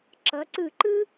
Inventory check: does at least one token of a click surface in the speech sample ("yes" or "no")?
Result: yes